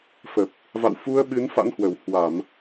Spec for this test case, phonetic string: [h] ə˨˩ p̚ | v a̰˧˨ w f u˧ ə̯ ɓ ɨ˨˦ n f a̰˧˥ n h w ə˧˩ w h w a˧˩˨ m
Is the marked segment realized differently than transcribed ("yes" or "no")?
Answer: yes